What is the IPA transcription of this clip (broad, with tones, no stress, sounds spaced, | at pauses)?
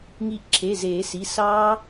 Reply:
ŋ i˧˩ ʔ ǁʰ e˩˧˩ z eː˨˩˦ s i˩˧˩ s ɑː˦˥